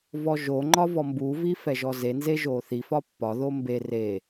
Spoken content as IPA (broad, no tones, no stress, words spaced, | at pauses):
vɔʒoŋ͡ǃɒ vɔmbuvi fɛʒɔzenze ʒoθifɒ pːɒðo mbe re